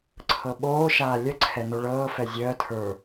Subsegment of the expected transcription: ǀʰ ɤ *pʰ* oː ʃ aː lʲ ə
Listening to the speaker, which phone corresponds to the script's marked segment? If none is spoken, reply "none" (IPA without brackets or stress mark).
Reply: ɓ